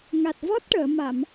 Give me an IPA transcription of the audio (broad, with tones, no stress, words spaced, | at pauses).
ŋa˨˩t̚vɔ˦˥t̚ʈəː˨˩˨ ma˨˩˨m